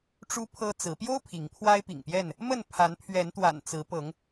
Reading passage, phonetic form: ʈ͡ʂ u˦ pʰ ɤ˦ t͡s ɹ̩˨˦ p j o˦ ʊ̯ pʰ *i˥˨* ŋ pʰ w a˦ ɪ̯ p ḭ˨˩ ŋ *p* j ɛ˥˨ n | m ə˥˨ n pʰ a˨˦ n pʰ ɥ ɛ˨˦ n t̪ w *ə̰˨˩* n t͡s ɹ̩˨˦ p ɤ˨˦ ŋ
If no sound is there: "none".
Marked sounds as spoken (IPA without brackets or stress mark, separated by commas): i˨˦, p, a̰˨˩